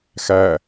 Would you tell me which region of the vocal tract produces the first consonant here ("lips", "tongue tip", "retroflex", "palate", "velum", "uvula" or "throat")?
velum